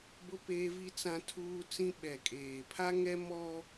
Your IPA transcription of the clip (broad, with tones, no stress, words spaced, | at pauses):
bʊ˦peː˦vi˦ t͡sã˦tʰuː˦t͡sĩ˦ ɓɛ˨kʼeː˨ pʰa˦ŋɛ˦ mɔ˦